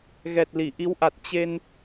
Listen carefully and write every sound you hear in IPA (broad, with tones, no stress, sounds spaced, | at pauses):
ɣ ɛ˨˩ t̚ l i˧˩ ʔ i˨˦ w ʔ a˨˩ t̚ t͡ɕ e˧ n